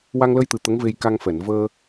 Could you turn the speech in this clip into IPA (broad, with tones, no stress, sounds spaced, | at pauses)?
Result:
w a˧ ŋ l ə˧ j t̪ ɨ˨˩ t̪ ə˧˥ ŋ v e˧ j k a˧ ŋ f ɛ˨˩˨ n v əː˧